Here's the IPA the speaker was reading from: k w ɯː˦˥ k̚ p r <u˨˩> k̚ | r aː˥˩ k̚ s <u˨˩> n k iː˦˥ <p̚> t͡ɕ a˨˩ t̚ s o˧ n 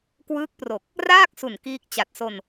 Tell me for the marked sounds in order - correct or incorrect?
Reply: incorrect: o˨˩, correct, incorrect: k̚

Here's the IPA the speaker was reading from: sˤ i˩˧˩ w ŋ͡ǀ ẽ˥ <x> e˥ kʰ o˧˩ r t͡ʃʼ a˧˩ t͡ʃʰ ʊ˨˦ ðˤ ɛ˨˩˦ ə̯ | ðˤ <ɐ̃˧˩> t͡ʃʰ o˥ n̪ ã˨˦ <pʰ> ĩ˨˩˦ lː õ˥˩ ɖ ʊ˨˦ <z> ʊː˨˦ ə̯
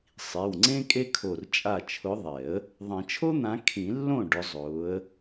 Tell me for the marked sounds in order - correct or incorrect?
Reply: incorrect: kʼ, incorrect: ɐ̃˨˩˦, incorrect: kʰ, incorrect: zˤ

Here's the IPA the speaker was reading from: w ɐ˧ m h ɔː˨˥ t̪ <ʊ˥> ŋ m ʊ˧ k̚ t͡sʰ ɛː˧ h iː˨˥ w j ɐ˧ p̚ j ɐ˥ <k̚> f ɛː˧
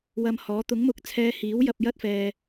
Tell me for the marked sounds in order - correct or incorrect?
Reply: incorrect: ʊ˨˥, incorrect: t̚

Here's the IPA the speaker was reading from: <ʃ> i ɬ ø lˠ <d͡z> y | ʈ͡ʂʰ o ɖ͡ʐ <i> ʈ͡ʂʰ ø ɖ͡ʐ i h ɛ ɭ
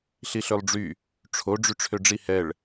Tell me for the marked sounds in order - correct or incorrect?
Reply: incorrect: ɬ, incorrect: ɖ͡ʐ, incorrect: y

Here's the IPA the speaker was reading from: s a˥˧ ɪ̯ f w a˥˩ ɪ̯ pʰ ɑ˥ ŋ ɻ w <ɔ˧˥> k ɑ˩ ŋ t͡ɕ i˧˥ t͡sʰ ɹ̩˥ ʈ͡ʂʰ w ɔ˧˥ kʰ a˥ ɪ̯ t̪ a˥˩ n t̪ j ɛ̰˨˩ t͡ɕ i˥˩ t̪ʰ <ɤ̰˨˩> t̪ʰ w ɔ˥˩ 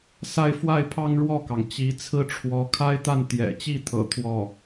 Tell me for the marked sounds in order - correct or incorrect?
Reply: incorrect: ɔ˥˩, correct

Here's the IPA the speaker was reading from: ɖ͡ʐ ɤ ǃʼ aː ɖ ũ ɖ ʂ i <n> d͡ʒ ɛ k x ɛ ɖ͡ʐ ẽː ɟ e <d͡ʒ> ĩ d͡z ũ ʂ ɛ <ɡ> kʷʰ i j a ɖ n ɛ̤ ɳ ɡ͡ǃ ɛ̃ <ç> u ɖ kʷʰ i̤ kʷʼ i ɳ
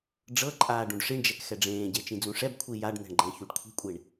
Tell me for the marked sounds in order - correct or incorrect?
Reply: incorrect: ɳ, incorrect: t͡ʃ, incorrect: b, correct

